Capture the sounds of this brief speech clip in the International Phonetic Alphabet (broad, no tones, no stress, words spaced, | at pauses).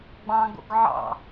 ɡ͡bɑ̃ɡo̰ɡ ʕɑ̰